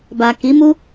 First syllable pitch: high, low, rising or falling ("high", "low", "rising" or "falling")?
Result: low